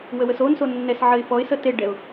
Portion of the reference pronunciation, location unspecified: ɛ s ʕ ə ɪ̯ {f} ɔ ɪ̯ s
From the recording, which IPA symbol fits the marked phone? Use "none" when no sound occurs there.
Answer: f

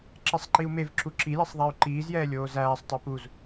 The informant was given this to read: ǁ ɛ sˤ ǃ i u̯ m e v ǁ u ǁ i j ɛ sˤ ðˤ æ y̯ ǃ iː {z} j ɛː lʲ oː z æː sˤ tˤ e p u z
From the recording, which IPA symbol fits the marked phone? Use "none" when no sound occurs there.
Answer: z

